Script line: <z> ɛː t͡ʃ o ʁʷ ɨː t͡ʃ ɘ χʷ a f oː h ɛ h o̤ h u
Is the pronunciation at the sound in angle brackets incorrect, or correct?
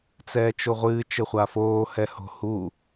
incorrect